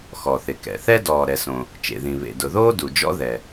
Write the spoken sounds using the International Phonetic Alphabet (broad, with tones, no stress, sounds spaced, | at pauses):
x ɔ˩ θ ɪ˩ k ɛ̰˩ θ ɛ˥ d ɔː˩ ɾ ɛ˩ s õ˩ | t͡ʃ ḛ˩ ð ĩ˩ β ḛ˩ d ʊ˩ ð oː˥ d u˩ d͡ʒ ɔ̰˥ ð ɛ˩